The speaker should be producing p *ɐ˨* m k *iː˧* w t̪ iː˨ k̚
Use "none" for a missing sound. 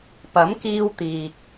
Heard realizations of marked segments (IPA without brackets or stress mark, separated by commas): ɐ˨˥, iː˧